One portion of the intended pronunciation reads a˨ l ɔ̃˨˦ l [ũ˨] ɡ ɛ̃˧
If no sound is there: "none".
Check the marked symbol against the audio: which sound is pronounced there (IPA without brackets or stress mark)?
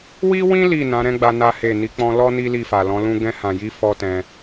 ũ˦